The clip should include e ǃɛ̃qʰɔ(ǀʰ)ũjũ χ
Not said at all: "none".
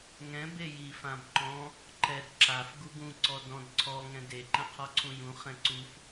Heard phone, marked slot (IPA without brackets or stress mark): ǀʰ